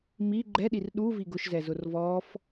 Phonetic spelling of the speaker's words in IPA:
m i ɡ͡ǃ ɛ ɗ i r ɗ u v i ɡ ʊ ʃ z ɛ z ʊ r v ɔ f

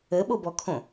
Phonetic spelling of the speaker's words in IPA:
ə ɓ o b ɔ kʰ õ

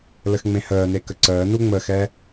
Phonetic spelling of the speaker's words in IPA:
l ə x ŋ͡m ẽ h əː n e k ə ǀ əː n u ŋ͡m ə x ɛ

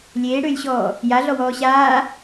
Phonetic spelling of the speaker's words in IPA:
lʲ eː ɽ ʏː lʲ ɕ ɔː | j a ɮ ɔ w ɔː ɕ aː

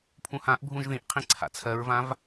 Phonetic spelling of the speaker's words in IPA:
pʰ ũ h ã ʔ bʱ ũ ʒ ð ĩ ʔ qʰ ĩ ǀʰ a̰ t͡sʰ ɜ ɹ v ã v

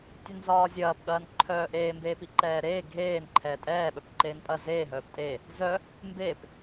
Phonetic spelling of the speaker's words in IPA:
tʲ ɛ n z ɒː zʲ ɐː p ɠ ɐː n ǃʰ œː ʔ eː m b eː p i ǃ ɛː ɾ eː ɡʱ eː n ǃʰ ɛː tʼ ɛː ɓ œ p ǃ eː n pʼ ɐ z eː ɦ œː p tʼ e | z œ | m b e p

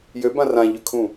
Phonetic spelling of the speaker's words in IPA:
j ø b ã r ã ʎ ʏ kʰ ũ

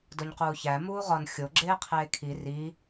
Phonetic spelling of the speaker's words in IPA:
d o ɲ q uː ç æ m uː ʁ ɒ n xʲ o ɡ͡ǁ eː qʰ eː kʰ i r i

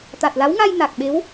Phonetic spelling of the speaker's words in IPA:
t̪ a˨˩ t̚ l a˨˦ w ŋ a˧ j n a˨˩ k̚ ɓ e˨˦ w

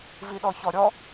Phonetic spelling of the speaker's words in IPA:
v i ɗ ɔ ç ɔ ɾʲ ɔ

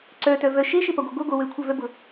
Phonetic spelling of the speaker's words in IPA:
ǀ œ t œ v œ ʃ e ʃ e p ɐ ɡʷ œ ɡʷ ə ɡʷ œ w ø kʷʰ œ v œ b ʊ

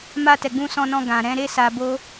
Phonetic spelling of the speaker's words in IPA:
m a˧ t ɛ˨ ɡ͡b ũ˧ s ɔ̃˧ n ɔ̃˧ ɡ ã˨ ɾ ɛ̃˨˦ ɾ e˦ s a˧ b o˦

